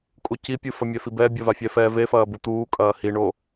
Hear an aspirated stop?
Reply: no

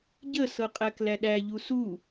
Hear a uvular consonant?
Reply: yes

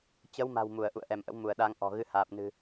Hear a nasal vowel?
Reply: no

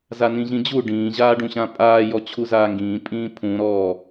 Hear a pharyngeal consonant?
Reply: no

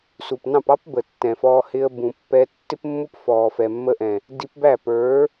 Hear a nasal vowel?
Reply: yes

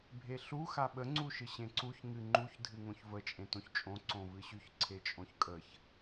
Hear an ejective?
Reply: yes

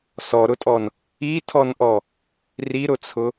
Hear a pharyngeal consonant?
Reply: no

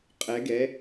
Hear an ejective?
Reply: yes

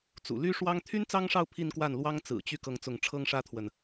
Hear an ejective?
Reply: no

